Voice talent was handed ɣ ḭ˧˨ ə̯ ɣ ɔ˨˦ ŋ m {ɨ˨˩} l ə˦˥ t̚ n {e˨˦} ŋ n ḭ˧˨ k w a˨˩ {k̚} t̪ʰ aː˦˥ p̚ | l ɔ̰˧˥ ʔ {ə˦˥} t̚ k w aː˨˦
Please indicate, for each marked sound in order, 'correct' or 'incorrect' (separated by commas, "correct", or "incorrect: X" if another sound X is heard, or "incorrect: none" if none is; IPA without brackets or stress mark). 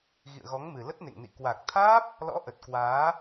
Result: correct, incorrect: ḛ˧˨, correct, incorrect: ə˨˩